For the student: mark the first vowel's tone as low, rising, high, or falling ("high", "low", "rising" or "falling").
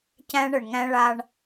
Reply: high